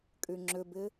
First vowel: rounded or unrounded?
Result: rounded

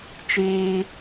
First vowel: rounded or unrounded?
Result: unrounded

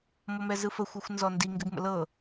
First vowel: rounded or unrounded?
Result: rounded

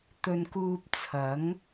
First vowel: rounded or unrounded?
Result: rounded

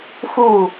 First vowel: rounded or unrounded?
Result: rounded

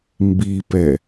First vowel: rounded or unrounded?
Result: unrounded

